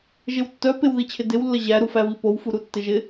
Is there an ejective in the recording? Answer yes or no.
no